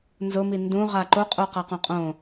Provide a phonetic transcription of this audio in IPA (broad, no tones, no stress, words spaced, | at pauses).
nzʊmi ndũ ʁaǃo qʼoqaqõqʼõ